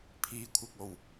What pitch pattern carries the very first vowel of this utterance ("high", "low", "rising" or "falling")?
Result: low